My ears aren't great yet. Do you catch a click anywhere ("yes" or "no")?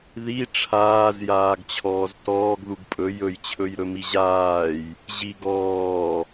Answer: no